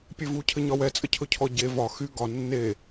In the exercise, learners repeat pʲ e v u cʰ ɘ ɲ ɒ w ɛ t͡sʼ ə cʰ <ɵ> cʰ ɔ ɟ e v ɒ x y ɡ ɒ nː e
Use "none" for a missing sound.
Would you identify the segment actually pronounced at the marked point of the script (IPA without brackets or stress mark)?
ɵ